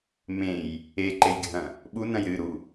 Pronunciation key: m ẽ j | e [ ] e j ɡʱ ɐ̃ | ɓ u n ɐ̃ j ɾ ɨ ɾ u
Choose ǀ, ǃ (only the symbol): ǃ